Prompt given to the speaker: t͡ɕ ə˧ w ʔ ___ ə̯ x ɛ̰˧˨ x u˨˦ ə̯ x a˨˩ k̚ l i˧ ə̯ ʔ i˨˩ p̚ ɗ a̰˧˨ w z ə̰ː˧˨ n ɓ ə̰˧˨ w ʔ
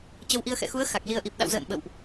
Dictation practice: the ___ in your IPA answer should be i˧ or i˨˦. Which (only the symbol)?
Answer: i˧